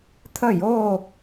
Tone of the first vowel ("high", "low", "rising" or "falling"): falling